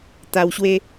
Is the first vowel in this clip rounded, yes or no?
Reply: no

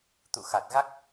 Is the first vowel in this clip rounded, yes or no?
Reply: yes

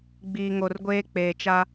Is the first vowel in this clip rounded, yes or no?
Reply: no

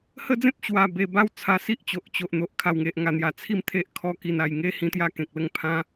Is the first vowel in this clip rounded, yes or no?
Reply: no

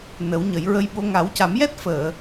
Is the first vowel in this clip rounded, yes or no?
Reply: no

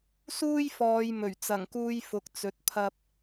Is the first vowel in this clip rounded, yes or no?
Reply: yes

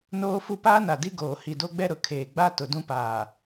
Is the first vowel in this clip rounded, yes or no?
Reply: yes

